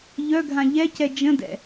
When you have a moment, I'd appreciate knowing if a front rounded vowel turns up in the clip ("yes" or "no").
yes